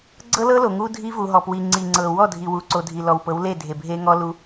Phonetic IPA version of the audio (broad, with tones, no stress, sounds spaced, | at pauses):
ɡ͡ǀ ɤ˦ l ɤ˦ l o˨ ŋ u˦ dʱ i˦ v u˨ ɦ ɔ˨ p w i˨ ŋ͡ǀ i˨ ŋ͡ǀ ɤ˨ w ɔ˦˨ dʱ i˨ w u˨ ǀ o˨ dʱ i˨ l ɔ˨ w p ɤ˨˦ w l e˦˨ dʱ e˨ bʱ e˦ ŋ ɔ˦ l u˦